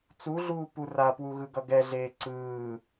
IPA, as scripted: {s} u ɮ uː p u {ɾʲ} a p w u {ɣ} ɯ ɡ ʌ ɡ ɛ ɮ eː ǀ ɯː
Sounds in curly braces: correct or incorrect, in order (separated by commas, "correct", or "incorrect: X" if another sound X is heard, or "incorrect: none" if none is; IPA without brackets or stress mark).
incorrect: t͡s, incorrect: r, correct